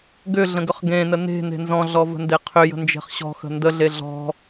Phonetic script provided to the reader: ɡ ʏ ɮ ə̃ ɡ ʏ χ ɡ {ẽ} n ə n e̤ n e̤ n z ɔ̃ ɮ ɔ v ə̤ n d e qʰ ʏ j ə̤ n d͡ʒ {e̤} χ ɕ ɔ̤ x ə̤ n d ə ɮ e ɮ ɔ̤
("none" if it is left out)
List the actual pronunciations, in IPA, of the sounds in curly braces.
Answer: ẽ, e̤

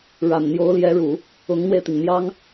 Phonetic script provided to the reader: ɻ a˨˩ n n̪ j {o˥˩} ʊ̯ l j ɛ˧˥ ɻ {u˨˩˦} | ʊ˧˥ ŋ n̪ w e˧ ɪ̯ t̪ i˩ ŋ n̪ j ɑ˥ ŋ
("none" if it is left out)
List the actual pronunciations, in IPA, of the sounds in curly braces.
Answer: o˧˥, u˨˩˦

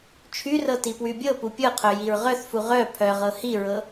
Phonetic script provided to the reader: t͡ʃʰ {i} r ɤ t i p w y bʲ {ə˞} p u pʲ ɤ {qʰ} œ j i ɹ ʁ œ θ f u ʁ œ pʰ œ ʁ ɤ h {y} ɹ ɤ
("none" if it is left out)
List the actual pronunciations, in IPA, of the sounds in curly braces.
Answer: y, ɤ, qʰ, i

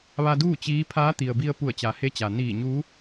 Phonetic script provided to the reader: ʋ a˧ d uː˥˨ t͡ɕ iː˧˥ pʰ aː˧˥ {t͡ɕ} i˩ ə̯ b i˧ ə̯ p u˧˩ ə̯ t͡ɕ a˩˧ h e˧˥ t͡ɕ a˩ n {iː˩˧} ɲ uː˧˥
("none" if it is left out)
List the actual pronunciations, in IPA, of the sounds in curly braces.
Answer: t̪, iː˧˩

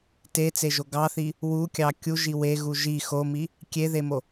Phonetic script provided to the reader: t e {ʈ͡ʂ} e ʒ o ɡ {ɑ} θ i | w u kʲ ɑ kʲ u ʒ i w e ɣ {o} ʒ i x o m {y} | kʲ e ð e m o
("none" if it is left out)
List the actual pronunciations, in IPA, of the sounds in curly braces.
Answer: t͡s, ɑ, u, i

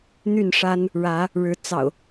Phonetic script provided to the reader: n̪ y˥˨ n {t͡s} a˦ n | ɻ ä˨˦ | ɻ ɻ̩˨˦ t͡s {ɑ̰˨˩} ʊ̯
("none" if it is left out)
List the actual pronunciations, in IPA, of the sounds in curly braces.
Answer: ʂ, ɑ̰˨˩

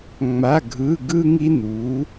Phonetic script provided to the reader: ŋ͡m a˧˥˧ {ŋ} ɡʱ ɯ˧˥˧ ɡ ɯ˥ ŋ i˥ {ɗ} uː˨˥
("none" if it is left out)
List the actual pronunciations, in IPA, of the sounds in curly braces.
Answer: none, n

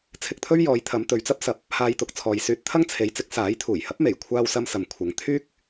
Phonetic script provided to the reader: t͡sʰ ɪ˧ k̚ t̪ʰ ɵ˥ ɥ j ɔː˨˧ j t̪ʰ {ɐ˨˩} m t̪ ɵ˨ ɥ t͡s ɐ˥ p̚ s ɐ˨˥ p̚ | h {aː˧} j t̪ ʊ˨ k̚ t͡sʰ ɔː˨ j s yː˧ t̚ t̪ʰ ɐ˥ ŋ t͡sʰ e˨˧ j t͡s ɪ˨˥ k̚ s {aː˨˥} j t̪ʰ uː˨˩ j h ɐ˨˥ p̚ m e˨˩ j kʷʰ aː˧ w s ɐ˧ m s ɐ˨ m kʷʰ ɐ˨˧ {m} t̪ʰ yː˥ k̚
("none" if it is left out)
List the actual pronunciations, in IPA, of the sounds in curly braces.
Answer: ɐ˨˧, aː˧, aː˨˥, ŋ

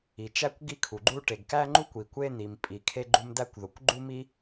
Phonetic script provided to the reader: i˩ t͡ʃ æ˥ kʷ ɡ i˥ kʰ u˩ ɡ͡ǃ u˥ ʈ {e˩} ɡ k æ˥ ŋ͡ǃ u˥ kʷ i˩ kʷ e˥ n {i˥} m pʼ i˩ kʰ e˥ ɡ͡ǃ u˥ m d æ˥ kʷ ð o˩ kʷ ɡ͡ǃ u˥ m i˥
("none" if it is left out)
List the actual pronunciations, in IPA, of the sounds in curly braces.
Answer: e˩, i˩

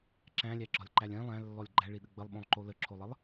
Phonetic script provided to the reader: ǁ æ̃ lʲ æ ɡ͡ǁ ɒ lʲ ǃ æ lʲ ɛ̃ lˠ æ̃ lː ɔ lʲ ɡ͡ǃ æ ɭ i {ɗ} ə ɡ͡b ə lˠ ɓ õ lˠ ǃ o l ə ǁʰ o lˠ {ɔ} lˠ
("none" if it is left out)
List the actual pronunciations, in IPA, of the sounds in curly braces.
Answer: ɗ, ə

